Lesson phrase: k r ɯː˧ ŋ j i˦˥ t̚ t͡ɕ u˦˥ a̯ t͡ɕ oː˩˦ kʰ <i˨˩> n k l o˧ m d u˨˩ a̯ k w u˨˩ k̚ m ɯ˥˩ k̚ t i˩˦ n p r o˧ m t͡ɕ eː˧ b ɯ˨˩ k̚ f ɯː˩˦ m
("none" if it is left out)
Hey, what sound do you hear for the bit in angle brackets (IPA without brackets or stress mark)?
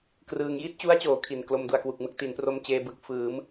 i˨˩